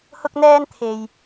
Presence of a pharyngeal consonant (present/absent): absent